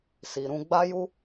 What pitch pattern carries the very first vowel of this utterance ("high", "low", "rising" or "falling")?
low